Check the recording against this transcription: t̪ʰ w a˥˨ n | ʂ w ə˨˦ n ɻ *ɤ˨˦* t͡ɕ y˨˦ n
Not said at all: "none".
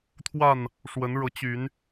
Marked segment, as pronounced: ɤ˨˦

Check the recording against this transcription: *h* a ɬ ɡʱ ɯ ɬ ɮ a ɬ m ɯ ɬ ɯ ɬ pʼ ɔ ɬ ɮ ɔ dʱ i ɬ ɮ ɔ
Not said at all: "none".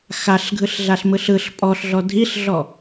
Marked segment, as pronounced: x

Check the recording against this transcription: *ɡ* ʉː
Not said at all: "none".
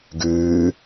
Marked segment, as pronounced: ɡ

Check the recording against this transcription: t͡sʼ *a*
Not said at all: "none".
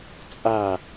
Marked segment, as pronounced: a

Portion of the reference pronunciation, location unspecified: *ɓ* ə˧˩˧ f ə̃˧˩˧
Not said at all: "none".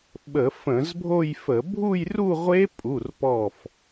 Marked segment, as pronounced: ɓ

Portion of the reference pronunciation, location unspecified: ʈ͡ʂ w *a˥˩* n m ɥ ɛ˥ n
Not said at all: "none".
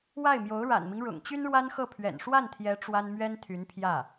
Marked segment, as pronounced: a˥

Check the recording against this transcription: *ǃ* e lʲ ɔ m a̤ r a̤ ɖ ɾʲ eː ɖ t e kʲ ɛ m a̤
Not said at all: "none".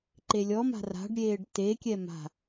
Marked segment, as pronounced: ǃ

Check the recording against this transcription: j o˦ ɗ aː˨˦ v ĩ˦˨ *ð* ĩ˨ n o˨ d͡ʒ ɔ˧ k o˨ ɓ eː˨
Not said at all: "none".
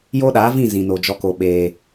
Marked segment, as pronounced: z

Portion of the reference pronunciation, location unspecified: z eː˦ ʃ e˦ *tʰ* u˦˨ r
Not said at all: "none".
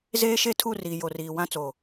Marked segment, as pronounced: tʰ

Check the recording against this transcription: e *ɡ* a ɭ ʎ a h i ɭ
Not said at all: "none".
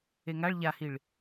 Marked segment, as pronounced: ŋ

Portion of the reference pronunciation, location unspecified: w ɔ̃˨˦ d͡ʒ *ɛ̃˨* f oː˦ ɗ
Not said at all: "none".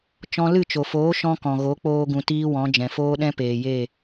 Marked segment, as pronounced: ɛ̃˨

